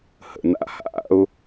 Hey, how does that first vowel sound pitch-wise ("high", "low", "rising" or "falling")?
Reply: low